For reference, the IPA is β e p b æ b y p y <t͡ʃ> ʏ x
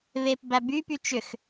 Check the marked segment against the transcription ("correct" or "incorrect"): correct